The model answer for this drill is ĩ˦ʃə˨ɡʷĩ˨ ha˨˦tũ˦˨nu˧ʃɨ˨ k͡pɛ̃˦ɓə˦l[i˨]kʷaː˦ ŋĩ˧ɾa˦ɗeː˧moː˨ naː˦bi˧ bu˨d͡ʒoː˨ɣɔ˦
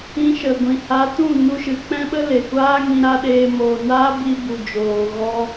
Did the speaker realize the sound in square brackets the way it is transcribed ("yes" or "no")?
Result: no